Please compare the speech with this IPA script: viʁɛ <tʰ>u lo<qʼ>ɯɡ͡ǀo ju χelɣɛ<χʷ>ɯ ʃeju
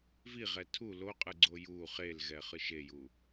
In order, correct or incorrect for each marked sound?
correct, correct, incorrect: χ

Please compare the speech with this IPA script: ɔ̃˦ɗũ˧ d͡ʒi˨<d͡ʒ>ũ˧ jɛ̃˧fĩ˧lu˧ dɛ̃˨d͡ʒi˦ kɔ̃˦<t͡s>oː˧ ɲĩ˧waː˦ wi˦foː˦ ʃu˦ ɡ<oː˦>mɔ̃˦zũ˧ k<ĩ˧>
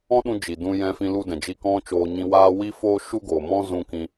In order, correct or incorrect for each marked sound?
incorrect: d, incorrect: t͡ʃ, incorrect: oː˨, correct

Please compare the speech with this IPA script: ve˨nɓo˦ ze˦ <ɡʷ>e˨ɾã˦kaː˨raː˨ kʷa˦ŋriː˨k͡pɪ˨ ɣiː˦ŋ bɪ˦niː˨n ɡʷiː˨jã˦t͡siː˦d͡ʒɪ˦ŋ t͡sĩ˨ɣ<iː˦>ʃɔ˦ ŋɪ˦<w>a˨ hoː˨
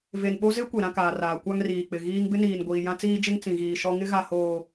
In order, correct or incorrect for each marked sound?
incorrect: kʷ, incorrect: iː˨, incorrect: ɣ

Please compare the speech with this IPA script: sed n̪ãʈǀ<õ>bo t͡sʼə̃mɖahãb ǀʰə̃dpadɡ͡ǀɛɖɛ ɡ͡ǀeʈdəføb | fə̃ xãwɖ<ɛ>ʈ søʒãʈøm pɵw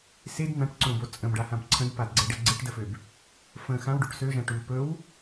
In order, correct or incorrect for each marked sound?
correct, incorrect: ø

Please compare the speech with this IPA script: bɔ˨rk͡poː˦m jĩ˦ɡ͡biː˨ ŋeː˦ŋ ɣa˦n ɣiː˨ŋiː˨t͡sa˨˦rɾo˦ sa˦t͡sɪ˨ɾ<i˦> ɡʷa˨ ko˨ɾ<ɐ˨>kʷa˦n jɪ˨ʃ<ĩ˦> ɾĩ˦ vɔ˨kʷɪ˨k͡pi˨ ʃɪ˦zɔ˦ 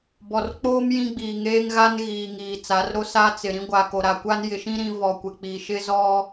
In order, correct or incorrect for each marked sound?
incorrect: ĩ˦, incorrect: a˨, correct

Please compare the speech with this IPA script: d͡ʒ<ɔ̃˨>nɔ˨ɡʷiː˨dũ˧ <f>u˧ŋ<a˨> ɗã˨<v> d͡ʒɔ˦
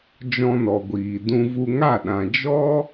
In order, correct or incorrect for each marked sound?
incorrect: ɔ̃˧, incorrect: v, incorrect: a˦˨, incorrect: none

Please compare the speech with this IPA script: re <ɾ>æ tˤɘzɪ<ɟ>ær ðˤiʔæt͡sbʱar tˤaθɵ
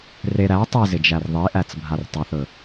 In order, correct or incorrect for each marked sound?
correct, incorrect: d͡ʒ

